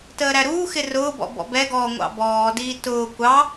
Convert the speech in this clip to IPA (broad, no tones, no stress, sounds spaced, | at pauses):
t əː ɾ æ ɾ uː x ɪ r ʊː b ɔ̰ b ɔ̰ b ɛ ɡ ɔː ŋʷ ɑ̰ b ɔː d iː t ʊː kʷ ɑ